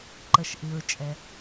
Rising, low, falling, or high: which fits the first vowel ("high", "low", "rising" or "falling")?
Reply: low